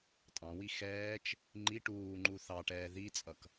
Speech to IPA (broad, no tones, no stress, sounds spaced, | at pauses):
tʼ ɑ̃ w i x ɛː t͡ʃ | ŋ͡ǃ i ʈ uː ŋ͡ǃ u θ ɑ ʈ ɛː ð i t͡sʼ ʌ k